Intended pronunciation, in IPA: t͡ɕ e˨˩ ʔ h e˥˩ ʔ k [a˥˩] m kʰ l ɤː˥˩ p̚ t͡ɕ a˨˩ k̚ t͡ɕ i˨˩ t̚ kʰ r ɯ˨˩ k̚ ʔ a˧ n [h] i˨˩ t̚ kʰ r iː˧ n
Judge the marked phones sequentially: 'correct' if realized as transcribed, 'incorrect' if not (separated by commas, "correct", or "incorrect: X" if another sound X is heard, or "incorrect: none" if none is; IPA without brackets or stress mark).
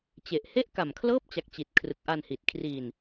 incorrect: a˨˩, correct